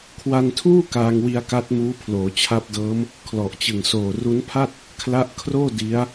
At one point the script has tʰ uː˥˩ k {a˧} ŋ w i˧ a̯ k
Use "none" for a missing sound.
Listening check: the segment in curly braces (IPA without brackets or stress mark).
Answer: aː˧